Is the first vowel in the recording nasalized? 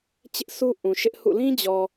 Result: no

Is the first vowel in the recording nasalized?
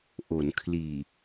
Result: no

